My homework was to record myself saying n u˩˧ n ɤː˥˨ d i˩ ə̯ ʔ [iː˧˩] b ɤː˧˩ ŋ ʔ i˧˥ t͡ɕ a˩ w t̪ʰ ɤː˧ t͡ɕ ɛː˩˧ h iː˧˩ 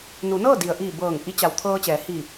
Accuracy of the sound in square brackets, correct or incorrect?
correct